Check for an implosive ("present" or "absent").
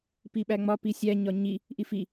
present